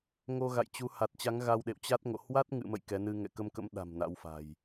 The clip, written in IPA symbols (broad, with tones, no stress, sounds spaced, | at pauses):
ŋ o˧ ɣ a̰˧˨ j t͡ɕ u˨˦ h a˨˩ t̚ t͡ɕ a˨˦ ŋ ɣ a˧ w ɗ ḛ˧˨ w t͡ɕ a˦˥ t̚ ŋ o̰˧˨ h w a˦˥ t̚ ŋ ɨ̰˧˨ m ə̰˧˨ j k ɛ˨˦ n ɨ˧ ŋ ɛ̰˧˨ k ə˧ m k ə̰˧˥ m ɗ a̤˨˩ m n a̰˧˥ w f a̤˨˩ j